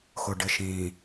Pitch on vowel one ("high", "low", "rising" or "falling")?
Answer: low